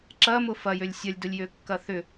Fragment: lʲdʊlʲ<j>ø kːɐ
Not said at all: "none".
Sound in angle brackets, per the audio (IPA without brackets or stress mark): j